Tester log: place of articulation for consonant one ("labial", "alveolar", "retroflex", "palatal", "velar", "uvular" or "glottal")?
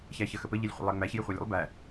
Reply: palatal